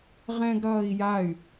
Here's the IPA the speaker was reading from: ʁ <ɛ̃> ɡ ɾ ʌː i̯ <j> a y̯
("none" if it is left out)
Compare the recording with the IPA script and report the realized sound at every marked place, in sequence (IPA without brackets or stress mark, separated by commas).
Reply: ɛ̃, j